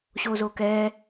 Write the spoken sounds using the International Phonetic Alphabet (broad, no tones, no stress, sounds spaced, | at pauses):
ɕ o z o k ɛ